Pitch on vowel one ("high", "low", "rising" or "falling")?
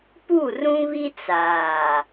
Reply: falling